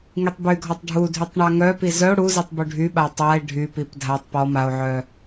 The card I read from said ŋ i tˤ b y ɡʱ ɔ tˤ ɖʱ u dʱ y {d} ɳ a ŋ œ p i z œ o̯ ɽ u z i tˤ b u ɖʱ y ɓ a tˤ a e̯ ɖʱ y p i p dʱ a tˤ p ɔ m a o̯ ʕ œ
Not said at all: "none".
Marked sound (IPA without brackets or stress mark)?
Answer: tˤ